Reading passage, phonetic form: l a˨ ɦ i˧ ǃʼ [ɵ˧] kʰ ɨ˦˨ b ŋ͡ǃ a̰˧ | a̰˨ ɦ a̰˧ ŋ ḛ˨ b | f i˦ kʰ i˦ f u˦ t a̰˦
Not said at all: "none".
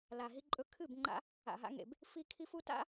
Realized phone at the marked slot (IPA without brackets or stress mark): ɵ˧